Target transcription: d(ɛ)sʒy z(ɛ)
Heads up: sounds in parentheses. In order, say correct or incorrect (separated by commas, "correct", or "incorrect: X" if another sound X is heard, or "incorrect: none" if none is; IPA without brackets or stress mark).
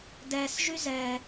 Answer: correct, correct